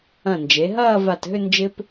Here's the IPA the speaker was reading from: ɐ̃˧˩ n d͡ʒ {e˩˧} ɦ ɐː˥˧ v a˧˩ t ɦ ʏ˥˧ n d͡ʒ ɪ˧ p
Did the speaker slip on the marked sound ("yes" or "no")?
no